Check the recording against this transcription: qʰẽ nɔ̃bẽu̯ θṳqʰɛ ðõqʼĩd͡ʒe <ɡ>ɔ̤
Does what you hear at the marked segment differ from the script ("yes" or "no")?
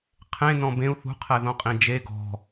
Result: no